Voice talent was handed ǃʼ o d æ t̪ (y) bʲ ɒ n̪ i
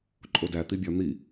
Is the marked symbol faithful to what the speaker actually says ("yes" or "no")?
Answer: no